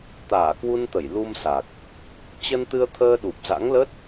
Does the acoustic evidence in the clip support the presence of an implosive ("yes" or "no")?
yes